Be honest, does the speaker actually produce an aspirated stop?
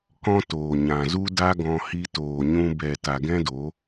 no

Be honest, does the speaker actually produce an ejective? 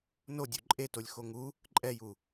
yes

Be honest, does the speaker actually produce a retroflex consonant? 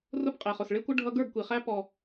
yes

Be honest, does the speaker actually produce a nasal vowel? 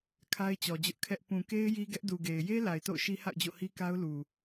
yes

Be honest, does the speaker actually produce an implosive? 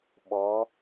yes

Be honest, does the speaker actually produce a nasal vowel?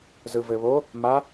no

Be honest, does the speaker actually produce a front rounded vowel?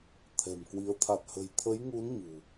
no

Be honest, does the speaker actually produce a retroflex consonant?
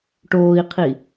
yes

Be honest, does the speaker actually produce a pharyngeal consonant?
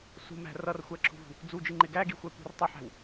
yes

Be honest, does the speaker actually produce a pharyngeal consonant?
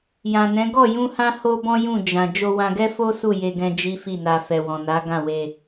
no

